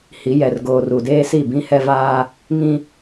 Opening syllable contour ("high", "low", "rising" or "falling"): rising